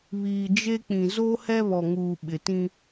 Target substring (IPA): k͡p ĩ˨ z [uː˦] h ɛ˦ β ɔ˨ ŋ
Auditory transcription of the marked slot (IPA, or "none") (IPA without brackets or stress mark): oː˦